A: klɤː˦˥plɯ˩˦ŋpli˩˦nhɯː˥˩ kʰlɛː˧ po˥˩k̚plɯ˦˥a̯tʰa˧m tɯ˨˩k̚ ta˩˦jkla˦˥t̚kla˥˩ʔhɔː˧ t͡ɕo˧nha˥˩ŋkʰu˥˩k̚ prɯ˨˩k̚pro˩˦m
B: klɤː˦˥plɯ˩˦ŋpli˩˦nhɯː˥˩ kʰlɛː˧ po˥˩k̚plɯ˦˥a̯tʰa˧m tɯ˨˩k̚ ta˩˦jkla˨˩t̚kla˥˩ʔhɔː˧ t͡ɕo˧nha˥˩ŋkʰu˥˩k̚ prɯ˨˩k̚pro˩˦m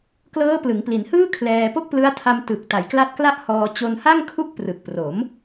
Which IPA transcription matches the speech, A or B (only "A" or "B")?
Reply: A